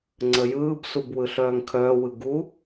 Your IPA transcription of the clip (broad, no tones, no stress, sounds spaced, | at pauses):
ŋ͡ǀ ə j ɯː b s u b w ɯ ɬ œː ŋ kʰ œː w ɯ ɡ u